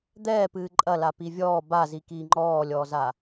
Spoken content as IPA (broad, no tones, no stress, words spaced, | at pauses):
d̪ɛːpɨː ǃʼɐla pivʲɔː bazi kiːŋ͡ǃɔːlʲɔːza